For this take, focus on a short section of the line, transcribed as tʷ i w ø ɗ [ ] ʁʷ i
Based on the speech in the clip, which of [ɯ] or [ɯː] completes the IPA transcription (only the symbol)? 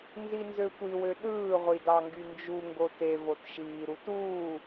ɯː